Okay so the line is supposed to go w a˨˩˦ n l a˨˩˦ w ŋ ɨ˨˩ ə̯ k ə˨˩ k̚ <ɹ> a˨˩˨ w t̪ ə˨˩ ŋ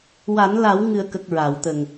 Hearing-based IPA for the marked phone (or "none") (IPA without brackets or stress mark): ɹ